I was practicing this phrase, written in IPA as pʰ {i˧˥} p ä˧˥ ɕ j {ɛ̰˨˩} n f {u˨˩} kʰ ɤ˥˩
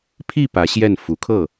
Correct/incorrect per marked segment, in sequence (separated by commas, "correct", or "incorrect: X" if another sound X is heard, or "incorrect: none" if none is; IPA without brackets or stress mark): incorrect: i˥˩, incorrect: ɛ˥˩, correct